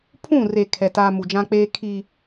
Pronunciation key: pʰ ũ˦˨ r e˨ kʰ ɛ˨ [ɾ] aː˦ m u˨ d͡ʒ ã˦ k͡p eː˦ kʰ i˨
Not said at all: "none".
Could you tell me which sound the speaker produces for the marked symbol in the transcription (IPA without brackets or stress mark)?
t